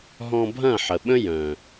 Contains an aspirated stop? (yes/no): no